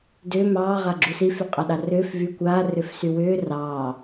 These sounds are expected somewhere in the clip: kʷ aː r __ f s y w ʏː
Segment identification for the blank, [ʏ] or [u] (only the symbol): ʏ